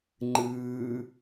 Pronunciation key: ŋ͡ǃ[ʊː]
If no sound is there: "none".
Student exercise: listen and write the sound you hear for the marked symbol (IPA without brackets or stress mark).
ɯː